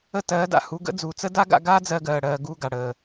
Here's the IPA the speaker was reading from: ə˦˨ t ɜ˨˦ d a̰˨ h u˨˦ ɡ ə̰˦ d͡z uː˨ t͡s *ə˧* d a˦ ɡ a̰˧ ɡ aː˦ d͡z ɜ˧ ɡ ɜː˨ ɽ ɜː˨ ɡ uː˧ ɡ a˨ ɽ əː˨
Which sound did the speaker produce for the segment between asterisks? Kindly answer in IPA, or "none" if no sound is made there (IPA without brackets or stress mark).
ə˦